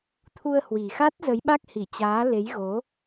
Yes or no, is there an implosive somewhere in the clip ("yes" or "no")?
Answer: yes